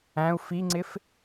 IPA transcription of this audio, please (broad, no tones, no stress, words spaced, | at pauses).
æ̃u̯ fiŋ͡ǀɪf